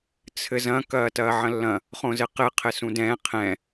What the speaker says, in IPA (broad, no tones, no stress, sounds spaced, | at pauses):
t͡sʰ ɘ z ɐ̃ k ɐː t ɐː ʕ ɐ̃ lː ɐ̃ | χ õ z ɘ q ɘ qʰ ɘ s ũ d ɛ̃ qʰ ɛ̃